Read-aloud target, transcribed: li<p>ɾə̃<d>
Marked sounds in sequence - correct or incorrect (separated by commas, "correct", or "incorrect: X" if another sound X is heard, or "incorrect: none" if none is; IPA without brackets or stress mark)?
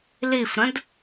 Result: incorrect: f, correct